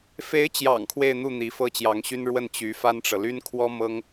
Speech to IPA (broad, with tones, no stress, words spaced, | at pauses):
fe˧˥ɪ̯t͡ɕjɑ̰˨˩ŋ kʰwe˥˧ɪ̯n̪u˥˩ n̪i˧˥fɤ˥t͡ɕjɑ˧˥ŋɕy˥n ɻwə˥˩n t͡ɕy˧˥fa˥nʈ͡ʂɤ˨ ly˥nkʰwɔ˥mɤ˥ŋ